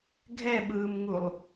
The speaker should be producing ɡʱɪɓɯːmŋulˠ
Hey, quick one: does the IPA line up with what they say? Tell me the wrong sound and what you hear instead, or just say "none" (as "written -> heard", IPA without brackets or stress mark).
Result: ɪ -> ɛ